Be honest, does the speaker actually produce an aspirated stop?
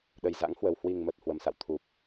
yes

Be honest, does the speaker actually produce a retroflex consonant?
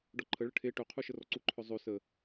yes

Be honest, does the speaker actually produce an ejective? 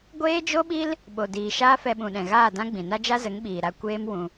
no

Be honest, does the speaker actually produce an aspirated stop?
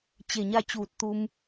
no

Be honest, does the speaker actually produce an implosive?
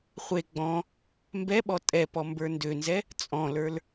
yes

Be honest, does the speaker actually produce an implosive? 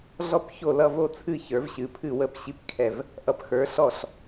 no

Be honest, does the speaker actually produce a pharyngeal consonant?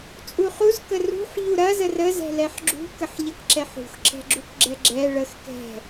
yes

